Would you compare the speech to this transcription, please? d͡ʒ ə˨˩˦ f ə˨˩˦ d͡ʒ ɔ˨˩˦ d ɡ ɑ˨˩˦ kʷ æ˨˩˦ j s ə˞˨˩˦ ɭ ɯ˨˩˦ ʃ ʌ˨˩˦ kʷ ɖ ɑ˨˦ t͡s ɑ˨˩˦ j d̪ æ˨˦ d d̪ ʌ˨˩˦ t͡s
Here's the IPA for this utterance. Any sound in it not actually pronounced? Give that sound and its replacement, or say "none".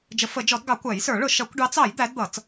ɯ˨˩˦ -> ʊ˨˩˦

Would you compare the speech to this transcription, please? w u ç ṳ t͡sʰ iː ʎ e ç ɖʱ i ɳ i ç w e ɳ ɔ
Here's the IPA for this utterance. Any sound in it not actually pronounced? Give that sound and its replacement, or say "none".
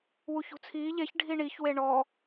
none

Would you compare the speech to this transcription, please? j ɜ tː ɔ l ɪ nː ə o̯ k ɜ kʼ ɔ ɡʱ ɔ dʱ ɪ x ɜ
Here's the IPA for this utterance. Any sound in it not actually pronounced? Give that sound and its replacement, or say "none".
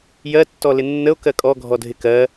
x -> k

